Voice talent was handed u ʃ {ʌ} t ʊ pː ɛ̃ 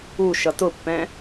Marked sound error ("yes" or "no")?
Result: no